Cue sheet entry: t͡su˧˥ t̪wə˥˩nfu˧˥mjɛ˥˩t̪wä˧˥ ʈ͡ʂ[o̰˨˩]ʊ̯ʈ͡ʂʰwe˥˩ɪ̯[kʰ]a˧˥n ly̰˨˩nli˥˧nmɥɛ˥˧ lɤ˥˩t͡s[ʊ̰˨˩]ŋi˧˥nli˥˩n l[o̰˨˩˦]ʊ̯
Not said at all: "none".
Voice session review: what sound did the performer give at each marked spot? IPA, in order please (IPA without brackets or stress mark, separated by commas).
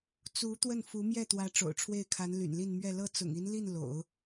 o̰˨˩, kʰ, ʊ̰˨˩, o̰˨˩˦